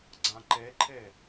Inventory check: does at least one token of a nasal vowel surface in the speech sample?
yes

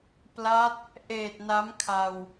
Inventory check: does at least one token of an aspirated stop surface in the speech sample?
yes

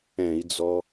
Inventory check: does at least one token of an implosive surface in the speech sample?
no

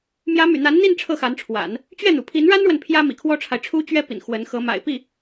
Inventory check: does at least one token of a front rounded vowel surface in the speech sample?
yes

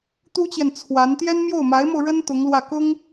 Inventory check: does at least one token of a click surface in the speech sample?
no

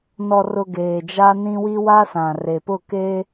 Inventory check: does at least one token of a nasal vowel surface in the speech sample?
yes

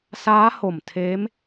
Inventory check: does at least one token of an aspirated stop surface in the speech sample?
yes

